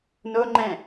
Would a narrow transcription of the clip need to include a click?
yes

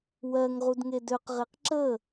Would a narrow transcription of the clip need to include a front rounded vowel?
yes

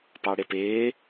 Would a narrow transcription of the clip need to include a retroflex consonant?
yes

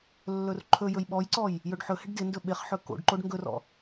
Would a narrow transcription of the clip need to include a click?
yes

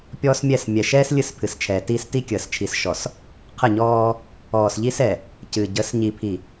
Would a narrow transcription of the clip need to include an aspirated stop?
yes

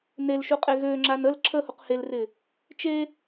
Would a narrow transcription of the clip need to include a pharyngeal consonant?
no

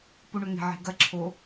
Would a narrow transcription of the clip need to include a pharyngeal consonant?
yes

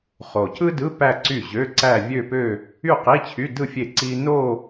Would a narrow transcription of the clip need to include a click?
yes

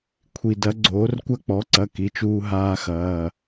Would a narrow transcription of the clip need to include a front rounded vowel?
no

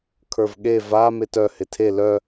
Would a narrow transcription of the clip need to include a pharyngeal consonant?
no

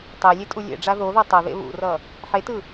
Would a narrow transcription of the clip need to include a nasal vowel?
no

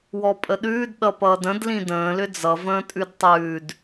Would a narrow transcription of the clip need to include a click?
no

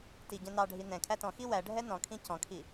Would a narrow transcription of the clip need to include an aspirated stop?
yes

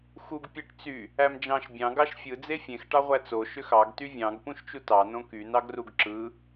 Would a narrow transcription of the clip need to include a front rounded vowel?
yes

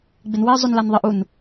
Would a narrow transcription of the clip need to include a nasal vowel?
no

